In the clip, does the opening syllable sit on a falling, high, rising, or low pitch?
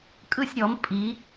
falling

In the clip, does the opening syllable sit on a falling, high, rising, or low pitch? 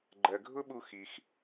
low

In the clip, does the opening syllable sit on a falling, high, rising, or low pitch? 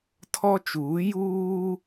high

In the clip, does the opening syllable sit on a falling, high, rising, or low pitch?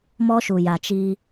high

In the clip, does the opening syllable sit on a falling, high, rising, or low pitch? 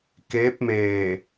rising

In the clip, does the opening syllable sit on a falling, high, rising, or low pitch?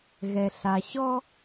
low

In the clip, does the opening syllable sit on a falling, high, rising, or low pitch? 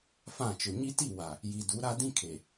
falling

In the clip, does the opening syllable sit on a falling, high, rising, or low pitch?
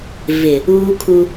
low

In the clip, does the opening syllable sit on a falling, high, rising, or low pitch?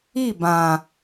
falling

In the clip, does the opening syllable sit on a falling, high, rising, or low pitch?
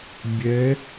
rising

